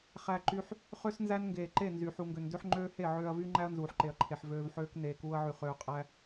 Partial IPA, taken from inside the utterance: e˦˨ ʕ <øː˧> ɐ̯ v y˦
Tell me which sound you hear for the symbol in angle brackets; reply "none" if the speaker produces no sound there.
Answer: øː˧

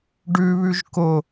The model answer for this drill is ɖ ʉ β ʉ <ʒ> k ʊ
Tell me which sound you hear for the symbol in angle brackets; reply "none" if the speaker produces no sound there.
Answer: ʒ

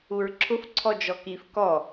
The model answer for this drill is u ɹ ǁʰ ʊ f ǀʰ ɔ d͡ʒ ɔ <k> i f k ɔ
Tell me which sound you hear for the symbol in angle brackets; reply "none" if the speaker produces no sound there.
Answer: k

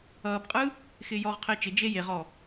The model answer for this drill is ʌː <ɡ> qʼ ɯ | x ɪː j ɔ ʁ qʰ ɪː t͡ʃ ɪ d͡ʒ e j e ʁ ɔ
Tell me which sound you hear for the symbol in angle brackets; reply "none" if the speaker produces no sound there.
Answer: b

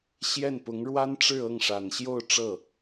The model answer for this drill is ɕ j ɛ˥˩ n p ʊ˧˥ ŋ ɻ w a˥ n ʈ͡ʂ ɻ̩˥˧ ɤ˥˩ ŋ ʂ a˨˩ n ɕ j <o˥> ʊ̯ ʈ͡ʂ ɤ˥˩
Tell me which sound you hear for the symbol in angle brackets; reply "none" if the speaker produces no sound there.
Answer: o˥˧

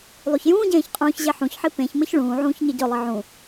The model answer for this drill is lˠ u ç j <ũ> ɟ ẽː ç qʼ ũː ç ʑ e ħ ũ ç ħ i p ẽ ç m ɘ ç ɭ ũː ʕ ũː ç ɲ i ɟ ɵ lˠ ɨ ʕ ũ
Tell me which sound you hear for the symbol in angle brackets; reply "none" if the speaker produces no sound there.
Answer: ũː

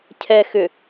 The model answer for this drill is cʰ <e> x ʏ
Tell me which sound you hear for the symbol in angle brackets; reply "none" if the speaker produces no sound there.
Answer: ɛ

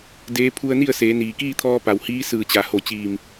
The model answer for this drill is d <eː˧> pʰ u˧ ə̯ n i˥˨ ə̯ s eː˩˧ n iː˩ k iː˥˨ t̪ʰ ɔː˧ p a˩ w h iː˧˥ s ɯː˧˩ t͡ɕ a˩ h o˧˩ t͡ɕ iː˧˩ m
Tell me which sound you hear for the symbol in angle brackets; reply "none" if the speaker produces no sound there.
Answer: eː˧˥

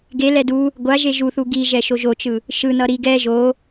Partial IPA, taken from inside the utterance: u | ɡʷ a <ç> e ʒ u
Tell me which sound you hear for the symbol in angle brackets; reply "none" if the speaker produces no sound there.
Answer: ʒ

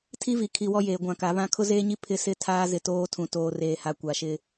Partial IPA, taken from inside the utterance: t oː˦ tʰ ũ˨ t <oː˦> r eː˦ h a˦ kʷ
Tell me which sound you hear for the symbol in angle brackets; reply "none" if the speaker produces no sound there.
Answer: oː˦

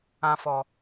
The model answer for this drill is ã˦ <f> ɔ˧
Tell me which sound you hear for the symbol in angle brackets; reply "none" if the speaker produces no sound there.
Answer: f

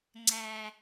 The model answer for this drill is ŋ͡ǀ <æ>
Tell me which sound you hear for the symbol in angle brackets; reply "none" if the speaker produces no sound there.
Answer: æ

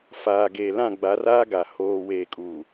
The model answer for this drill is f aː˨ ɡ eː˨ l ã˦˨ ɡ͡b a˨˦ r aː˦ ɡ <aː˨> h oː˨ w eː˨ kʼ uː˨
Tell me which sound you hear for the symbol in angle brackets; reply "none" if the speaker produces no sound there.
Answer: a˨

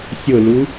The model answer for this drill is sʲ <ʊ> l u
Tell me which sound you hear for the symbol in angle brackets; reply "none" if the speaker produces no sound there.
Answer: ʊ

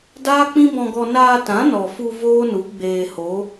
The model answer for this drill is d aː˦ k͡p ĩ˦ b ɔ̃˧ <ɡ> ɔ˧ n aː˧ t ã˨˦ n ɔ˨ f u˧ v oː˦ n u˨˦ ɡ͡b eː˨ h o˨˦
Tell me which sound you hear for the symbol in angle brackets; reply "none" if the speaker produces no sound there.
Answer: ɡ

